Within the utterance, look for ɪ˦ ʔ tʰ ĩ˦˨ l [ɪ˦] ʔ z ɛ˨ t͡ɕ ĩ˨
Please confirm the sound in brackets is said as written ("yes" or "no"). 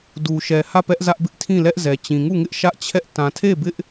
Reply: no